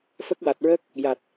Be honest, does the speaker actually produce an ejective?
no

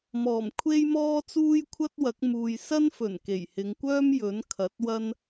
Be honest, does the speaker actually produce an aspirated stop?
yes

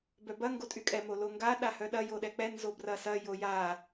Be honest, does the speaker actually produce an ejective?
yes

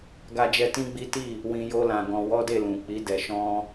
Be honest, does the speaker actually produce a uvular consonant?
no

